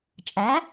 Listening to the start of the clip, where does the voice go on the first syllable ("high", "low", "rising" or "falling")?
rising